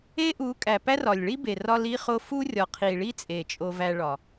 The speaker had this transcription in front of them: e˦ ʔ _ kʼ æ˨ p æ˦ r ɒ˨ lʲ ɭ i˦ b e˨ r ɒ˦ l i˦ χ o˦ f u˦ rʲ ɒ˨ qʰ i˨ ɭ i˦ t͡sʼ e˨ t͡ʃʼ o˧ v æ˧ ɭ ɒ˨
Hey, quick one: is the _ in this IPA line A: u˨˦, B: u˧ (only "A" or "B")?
A